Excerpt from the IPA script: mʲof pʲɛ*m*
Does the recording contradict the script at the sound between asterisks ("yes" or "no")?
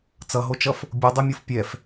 yes